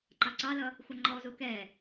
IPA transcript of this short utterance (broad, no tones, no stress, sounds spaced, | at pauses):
ǃ ɑ ǀ ɑ l ʌ | xʷ ʌ ŋ͡ǃ ɔ z u k ɛ